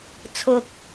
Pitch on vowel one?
low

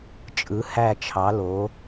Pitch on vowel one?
rising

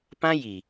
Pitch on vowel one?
high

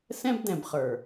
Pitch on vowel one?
high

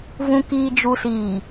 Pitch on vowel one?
low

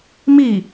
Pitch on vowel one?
falling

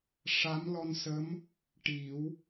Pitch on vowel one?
rising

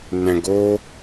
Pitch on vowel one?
low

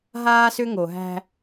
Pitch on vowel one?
high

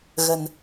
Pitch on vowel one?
low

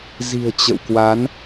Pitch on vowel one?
low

